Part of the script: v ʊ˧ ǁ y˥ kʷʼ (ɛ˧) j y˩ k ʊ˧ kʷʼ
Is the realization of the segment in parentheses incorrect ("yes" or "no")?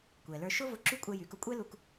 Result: no